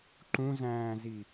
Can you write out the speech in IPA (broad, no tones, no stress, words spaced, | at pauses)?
ǃũzæ̃ːzi